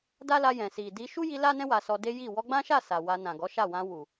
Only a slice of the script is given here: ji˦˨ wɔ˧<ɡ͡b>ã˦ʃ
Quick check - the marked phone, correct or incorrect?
correct